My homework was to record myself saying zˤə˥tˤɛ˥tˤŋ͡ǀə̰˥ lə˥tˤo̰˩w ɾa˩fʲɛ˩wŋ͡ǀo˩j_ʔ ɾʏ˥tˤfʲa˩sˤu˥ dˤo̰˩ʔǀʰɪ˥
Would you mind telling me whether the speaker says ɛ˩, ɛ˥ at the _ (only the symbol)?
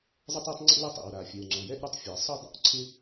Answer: ɛ˥